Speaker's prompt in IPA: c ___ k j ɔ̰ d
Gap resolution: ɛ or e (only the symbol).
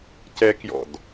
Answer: ɛ